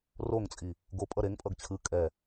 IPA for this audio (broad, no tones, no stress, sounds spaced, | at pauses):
r o ŋ t͡sʼ i | ɡ o pʼ ʌ ɾ e ŋ pʼ ʌ ɡ t͡ɕʰ ɯ kʼ ɛ